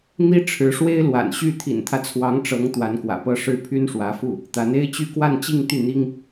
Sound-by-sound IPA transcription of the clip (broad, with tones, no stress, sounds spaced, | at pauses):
n̪ i˥ ʈ͡ʂʰ ɻ̩˧˥ ʂ w e˥ ɪ̯ l w a̰˨˩ n ɕ y˥˩ t̪ʰ ḭ˨˩ n t̪ʰ ä˦ t͡sʰ w ɑ˧˥ ŋ ʈ͡ʂ ɤ˧˥ ŋ t̪ w a˧˥ n k w ä̰˨˩ p ɤ˥ ʂ ɻ̩˥˩ pʰ y˥ n ʂ w ä˧˥ f u˥˩ | t̪ a˧˥ n e˥ ɪ̯ t͡ɕ y˥ k w a˥˧ n t͡ɕ i˥˧ ŋ t̪ y˥˩ n̪ i˥ ŋ